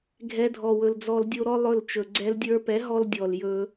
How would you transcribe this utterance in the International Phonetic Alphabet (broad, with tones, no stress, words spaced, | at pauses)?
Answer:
ɡʱɛ˧dʱɔ˨wɵ˨l d͡zɔ˧ldʲo˦ɾɔ˦ lˠɵ˦˨lt͡ʃɵ˨ ɡ͡ǀɛ˧ldʲə˞˧pɛ˨˦ ɦɔ˦ldʲɔ˨ljɵ˧